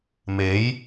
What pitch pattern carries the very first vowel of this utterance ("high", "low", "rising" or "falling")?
rising